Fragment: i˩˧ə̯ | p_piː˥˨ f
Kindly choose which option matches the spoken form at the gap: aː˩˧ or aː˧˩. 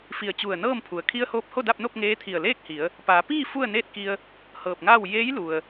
aː˩˧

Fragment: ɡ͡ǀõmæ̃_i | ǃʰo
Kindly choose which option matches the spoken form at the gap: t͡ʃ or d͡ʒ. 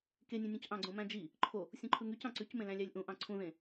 d͡ʒ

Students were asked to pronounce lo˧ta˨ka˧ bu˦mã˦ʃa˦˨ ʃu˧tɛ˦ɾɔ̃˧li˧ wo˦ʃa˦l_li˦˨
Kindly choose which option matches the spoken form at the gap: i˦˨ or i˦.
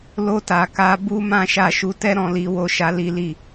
i˦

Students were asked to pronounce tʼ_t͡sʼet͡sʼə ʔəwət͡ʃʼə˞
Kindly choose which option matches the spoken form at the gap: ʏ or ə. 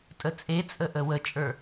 ə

